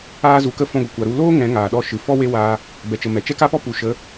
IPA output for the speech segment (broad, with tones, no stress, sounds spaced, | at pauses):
aː˧ z u˨ k ə˧ f ɔ̃˧ ɡʷ ə˨ kʷ a˨ ɾ u˧ l oː˦ ŋ ɛ̃˨˦ ŋ aː˨ ɗ ɔ˧ ʃ ɨ˨ f ɔ˦ w e˦ w aː˧ | b ɛ˨ t͡ʃ ə˨ m ɛ˨ t͡ʃ ɛ˦ k a˦ p ɔ˦ p u˨ ʃ ə˨˦